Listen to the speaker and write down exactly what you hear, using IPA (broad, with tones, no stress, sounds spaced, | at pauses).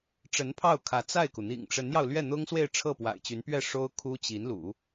ʈ͡ʂ ə˧˥ n pʰ ɑ˥˩ ʊ̯ kʰ ä˧˥ t͡s a˥˩ ɪ̯ k u˩ n̪ ḭ˨˩ ŋ ʈ͡ʂ ə˧˥ n j ɑ˧ ʊ̯ l ɥ ɛ˥˩ n̪ ʊ˥ ŋ s w e˥˧ ɪ̯ ʈ͡ʂʰ ɤ˥˩ p w a̰˨˩ ɪ̯ t͡ɕ y˧˥ n p ɥ ɛ˥˩ ʂ o˥ ʊ̯ kʰ u˥ t͡ɕ i˧˥ n l ṵ˨˩˦